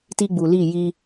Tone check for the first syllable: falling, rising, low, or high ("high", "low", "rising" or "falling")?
high